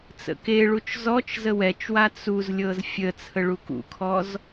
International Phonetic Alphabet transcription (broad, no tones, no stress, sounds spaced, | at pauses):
t͡s ə̰ k e ɭ u t͡ʃ z ɔ t͡ʃ z ə w ɛ t͡ʃ w a t͡s u z lʲ ɤ z fʲ ə t͡sʰ ə ɭ u k ṵ kʰ ɔ z